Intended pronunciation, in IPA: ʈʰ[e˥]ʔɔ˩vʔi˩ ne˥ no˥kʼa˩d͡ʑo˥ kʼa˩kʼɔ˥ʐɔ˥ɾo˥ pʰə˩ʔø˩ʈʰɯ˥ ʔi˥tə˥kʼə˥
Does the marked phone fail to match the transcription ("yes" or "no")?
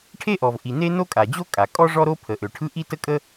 no